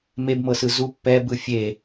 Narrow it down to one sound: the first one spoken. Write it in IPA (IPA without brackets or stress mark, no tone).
m